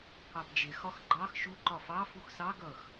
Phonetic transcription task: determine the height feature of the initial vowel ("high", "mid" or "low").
low